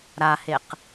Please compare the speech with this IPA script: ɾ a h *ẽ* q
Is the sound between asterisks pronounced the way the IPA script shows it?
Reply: no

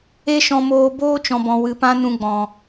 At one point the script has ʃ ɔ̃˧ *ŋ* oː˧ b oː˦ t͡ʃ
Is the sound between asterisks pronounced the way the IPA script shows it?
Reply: no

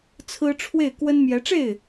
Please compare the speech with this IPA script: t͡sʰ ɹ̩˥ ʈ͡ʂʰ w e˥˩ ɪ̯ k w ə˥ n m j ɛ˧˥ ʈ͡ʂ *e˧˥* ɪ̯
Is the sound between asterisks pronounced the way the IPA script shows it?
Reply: no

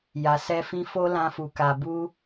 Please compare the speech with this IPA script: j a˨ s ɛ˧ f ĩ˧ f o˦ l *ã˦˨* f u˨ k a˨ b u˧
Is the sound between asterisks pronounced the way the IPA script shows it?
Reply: no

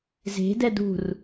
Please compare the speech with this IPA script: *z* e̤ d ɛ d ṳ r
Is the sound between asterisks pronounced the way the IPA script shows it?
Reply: yes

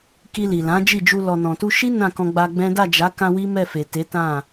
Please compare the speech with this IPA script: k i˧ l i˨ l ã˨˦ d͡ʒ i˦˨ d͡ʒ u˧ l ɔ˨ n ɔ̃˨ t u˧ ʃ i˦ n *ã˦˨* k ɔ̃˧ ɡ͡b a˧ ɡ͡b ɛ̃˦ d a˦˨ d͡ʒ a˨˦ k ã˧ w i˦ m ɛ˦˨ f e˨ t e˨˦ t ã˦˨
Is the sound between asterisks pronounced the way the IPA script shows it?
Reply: yes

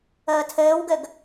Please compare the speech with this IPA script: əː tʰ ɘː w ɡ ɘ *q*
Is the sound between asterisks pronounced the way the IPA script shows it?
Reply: no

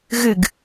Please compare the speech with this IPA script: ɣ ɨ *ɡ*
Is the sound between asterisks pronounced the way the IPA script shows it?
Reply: yes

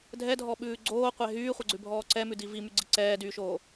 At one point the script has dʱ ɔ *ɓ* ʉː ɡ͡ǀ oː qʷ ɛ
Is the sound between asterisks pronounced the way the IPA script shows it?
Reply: yes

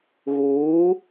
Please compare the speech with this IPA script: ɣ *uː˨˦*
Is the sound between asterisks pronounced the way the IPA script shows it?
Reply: yes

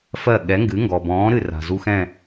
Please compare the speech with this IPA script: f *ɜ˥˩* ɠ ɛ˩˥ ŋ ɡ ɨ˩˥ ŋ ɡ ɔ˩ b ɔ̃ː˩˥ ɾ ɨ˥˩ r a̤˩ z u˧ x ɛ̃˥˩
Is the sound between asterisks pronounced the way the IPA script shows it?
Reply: yes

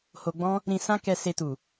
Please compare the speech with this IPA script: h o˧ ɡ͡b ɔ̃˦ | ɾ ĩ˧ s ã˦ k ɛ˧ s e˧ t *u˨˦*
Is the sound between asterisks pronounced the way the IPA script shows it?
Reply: no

